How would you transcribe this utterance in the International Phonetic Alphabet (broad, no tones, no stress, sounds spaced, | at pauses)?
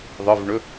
ðˤ ɨ v ɳ ɵ